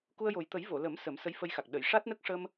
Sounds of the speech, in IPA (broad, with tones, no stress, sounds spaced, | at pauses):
k u˧ ə̯ j o˨˩ j t̪ ə˨˩˦ j v o˨˩˨ l ə˨˩˦ m s ə˨˩˦ m s ə˧˥ j f ə˧ j x a˨˩ k̚ ɗ ə˨˩˨ j ʂ a˦˥ t̚ n ə˦˥ k̚ ʂ ə˧ m